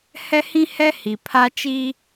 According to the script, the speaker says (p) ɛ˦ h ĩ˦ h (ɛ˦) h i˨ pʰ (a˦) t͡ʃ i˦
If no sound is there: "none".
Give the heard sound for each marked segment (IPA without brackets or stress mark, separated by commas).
h, ɛ˦, a˦